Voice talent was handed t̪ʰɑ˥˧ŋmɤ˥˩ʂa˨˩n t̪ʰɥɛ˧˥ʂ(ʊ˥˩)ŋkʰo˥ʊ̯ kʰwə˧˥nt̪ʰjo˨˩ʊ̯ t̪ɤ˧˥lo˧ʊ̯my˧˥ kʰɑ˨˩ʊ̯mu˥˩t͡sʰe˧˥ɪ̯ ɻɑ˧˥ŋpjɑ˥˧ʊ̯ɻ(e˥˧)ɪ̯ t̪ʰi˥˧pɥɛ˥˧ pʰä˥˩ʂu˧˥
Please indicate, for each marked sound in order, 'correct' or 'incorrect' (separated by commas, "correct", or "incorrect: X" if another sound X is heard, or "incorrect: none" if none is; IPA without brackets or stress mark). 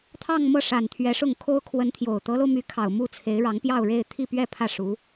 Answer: correct, correct